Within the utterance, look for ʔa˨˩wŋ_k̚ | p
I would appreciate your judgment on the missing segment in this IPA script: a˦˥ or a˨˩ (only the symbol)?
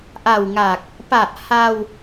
a˨˩